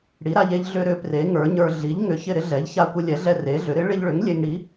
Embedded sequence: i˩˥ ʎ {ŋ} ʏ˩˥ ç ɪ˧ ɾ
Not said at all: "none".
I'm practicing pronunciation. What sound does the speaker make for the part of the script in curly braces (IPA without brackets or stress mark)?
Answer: ŋ